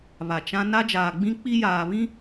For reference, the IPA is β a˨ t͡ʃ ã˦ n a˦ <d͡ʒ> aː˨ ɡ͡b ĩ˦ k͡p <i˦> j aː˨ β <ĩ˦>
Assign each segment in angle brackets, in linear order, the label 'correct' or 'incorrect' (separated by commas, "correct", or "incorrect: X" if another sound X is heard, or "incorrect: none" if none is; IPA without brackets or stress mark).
correct, correct, correct